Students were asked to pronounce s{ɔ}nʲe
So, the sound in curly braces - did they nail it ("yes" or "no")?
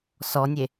yes